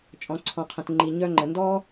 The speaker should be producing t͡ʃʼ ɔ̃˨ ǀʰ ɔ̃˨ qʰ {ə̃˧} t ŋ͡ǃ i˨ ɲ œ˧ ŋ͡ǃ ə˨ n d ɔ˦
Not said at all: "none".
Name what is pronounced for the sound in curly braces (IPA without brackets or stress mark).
ə̃˨